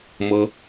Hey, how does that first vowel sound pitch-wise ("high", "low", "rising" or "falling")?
high